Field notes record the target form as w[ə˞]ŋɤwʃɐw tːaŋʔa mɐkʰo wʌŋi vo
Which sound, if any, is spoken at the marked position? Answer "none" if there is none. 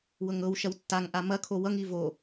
ɤ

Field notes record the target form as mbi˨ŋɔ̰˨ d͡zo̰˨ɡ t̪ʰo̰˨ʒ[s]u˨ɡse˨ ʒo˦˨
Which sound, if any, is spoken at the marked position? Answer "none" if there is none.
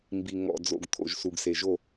s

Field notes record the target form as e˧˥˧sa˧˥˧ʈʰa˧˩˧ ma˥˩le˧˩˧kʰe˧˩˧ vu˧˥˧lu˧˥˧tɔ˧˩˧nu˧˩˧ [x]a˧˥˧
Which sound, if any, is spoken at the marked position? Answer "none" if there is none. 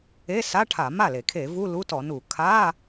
kʰ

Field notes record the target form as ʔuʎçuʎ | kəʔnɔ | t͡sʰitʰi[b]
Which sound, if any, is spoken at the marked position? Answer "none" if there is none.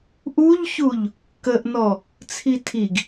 ɡ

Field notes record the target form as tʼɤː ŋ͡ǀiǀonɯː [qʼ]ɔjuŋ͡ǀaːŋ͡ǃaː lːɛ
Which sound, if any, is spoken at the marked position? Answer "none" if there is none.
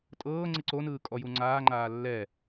kʼ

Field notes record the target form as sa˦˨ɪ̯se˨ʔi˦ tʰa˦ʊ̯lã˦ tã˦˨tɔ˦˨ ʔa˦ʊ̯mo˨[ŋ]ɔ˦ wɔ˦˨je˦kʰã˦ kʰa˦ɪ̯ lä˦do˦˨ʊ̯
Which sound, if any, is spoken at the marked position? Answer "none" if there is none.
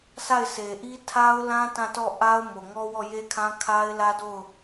ŋ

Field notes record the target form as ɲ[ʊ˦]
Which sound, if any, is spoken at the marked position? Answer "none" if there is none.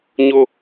ʊ˦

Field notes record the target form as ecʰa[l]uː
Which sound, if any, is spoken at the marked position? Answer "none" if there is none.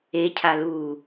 l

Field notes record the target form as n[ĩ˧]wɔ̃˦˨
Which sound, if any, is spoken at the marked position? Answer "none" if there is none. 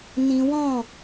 ĩ˧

